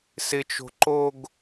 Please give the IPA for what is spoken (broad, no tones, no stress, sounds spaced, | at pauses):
s ɪ t͡ʃ o̤ ǃ o ɡ